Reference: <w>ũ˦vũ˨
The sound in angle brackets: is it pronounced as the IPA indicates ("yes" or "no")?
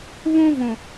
no